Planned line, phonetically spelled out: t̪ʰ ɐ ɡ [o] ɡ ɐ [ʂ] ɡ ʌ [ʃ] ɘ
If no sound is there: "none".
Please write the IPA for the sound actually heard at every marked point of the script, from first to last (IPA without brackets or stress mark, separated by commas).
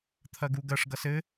u, ʂ, s